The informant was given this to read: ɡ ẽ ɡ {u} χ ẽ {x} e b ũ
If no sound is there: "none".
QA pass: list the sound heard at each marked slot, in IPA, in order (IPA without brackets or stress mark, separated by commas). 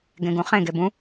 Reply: ũ, ɡ